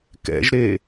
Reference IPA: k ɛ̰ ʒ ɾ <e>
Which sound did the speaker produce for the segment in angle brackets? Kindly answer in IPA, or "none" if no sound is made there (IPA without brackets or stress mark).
e